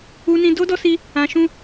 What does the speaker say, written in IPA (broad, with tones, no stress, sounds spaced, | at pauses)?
u˧ n ĩ˧ d o˧ d ɔ˧ s i˧ | ã˧ ʃ ũ˦